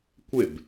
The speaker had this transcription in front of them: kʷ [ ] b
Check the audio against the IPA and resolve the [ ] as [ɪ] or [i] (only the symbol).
ɪ